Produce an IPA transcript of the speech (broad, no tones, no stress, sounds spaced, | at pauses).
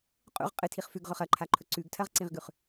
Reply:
qʼ ṵ ʁ qʼ ɨ tʰ i χ f ʉ ɡ ʁ ɵ χ ɐ ǃʰ a ǃʰ ɵ ǀ ʉ ɡ tʰ ɐ ʁ ǀ ĩ ʁ ɡ ʉ χ